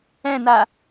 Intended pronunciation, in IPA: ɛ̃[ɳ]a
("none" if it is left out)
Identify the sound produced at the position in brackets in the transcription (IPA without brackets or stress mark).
n